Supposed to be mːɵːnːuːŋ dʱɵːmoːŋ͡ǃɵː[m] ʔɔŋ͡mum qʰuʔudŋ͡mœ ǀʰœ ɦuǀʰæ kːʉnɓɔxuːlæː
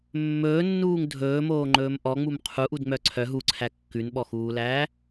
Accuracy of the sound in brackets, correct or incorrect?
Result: correct